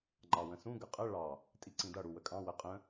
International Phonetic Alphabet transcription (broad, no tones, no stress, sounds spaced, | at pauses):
ŋ͡ǃ ɑ w ə̃ s ũ ɡ ə qʼ ə ɭ ɑ | tʼ i ǀ ĩ d ʌ ɽ u w ə kʼ ɑ̃ w ə qʼ ə̃